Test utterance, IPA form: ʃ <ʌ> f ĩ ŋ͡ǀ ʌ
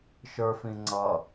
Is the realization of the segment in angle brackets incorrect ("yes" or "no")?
yes